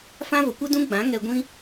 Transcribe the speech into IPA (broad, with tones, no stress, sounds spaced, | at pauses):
f ã˦ v ə˨ kʷ ə˦ d ũ˦ ɡ͡b ã˨˦ ŋ ɛ˧ ɡʷ ĩ˦